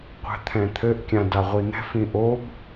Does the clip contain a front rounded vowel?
no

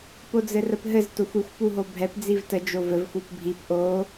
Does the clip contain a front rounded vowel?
no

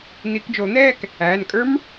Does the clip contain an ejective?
yes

